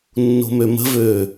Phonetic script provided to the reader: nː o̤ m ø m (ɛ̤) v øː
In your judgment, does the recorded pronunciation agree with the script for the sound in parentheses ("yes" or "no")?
no